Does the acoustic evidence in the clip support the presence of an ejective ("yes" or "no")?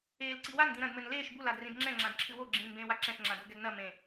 no